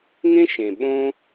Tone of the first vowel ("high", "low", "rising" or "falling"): high